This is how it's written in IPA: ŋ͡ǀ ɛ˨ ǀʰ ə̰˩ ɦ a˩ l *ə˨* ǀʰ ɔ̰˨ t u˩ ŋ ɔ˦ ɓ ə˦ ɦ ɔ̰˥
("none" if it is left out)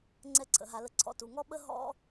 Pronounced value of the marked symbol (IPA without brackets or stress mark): ə˨